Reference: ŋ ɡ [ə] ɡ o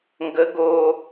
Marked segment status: correct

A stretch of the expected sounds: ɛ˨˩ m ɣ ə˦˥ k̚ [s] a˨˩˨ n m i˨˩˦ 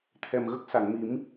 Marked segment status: correct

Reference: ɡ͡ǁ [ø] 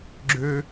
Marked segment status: correct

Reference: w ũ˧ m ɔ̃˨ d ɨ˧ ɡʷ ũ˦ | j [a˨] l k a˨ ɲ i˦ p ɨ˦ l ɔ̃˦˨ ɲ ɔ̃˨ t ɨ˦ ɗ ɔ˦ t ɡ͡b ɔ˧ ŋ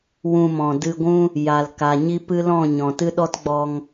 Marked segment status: correct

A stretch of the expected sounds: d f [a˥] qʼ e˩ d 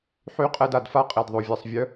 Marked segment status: correct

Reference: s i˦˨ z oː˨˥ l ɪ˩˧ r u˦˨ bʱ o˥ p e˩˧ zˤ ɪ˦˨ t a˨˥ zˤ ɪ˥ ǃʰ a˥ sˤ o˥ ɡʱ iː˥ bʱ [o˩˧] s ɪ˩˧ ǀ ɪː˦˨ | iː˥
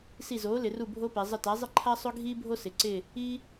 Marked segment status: incorrect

